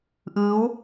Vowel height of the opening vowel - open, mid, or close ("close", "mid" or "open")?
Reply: close